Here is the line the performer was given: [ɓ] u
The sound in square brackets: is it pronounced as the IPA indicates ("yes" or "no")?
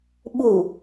yes